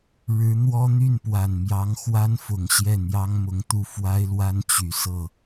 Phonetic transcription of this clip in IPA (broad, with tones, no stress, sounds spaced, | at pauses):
ɻ ɻ̩˧˥ n̪ w ɔ˥ n̪ y˥˩ n p w a˨˩ n m j ɑ˧˥ ŋ x w a˥ n f ʊ˨˩ ŋ ɕ j ɛ˥˩ n̪ j ɑ˥ ŋ m ʊ˧˥ ŋ t̪ u˥˩ f w a˥ ɪ̯ l w a˥ n t͡ɕ y˨˩ s ɤ˥˩